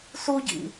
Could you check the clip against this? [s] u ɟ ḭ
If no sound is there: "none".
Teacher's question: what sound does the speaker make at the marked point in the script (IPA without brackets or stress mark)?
s